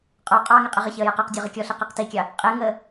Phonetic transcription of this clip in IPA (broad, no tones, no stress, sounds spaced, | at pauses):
qʼ ɔ qʼ ɑ ŋ ɪ qʼ ə ʁ ɪ ç ɪ ə̯ j ɛ q ɑ q dʲ ɔ ʁ ə kʲ ɔ ɬ i q ɛ q t i kʲ ɑ | qʼ ɪ ŋ ə